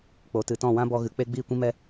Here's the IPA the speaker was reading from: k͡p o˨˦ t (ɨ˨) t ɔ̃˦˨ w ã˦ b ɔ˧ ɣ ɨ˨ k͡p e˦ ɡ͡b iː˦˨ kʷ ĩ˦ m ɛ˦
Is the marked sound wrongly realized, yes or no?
no